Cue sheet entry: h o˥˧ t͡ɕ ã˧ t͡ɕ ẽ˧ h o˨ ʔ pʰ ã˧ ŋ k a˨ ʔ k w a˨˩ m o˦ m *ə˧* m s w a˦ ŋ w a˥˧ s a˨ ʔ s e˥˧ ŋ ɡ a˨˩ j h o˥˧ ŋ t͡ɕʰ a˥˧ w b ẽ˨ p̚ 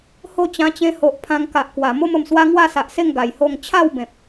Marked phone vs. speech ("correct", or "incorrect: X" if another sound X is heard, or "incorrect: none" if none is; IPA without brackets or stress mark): incorrect: ə˨˩